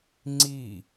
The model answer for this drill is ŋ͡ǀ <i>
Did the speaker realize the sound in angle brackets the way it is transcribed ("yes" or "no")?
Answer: yes